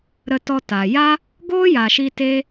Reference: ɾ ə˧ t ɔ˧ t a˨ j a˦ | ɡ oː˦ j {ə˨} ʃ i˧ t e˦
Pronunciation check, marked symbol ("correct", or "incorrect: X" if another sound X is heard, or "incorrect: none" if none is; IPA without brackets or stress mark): incorrect: a˨